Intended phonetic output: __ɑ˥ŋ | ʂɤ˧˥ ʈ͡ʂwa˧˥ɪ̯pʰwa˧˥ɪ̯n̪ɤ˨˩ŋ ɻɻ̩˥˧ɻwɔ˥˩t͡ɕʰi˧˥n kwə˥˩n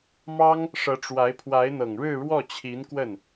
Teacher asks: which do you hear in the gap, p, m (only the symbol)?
m